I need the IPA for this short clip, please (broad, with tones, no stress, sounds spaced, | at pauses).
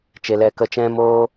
t͡ʃ e˦ l ɛ˦ k ə˦ t͡ʃ ɛ̃˦ m oː˦